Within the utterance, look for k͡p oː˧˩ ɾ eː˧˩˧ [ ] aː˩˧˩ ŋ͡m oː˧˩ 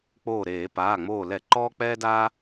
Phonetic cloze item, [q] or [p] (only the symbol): p